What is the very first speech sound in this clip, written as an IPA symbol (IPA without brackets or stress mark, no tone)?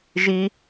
ʒ